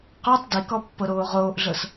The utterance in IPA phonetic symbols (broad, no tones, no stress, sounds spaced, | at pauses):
q o tˤ d i k ɔ pː ɤ ɾ oː ʁ oː ʔ ɮ ɤ s